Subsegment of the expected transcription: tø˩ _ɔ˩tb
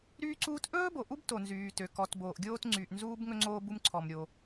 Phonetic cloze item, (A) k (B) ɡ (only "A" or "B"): A